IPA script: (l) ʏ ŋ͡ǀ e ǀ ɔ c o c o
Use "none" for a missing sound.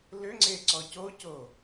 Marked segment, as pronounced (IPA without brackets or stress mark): l